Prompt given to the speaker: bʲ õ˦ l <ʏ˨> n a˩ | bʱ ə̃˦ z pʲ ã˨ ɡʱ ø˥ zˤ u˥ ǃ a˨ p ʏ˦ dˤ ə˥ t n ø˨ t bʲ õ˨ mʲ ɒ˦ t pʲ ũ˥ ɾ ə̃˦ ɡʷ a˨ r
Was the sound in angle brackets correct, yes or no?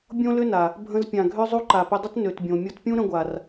no